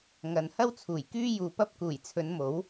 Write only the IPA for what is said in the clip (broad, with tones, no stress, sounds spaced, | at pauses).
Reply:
ŋ ɐ˨ n h ɐ˥ w t͡sʰ uː˨˩ j k yː˥ j uː˨ p ɐ˥ p̚ k uː˨˩ j t͡sʰ ɵ˨˧ n m o˨˥ w